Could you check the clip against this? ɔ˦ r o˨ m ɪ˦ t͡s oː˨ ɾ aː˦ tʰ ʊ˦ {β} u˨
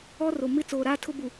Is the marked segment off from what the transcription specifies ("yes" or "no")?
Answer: yes